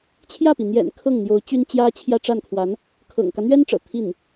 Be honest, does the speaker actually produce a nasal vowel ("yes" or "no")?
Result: no